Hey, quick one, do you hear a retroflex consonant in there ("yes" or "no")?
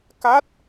no